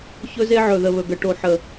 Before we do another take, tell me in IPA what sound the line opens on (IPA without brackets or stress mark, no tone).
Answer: ç